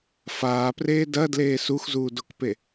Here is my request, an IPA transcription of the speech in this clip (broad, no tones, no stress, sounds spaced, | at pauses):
f aː p r eː d ɐ d l eː s u x z uː d o k p e